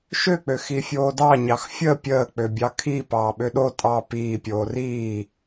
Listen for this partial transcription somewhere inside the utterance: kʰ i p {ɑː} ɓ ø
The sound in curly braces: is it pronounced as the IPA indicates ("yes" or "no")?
yes